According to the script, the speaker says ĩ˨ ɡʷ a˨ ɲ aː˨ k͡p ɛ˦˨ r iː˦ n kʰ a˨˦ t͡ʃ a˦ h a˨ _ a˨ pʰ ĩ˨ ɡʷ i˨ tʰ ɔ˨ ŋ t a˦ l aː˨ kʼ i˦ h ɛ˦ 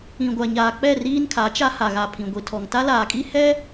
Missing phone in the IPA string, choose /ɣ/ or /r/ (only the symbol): ɣ